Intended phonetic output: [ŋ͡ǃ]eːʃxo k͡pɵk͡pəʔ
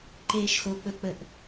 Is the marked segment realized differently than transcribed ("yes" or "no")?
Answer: yes